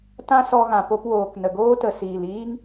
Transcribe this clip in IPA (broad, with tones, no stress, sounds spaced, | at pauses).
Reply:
t ã˦ s ɔ˧ ɣ ã˨ p o˧ p w oː˨ k n ə˨ ɡ oː˦ t ə˨ s iː˨ l iː˦ ŋ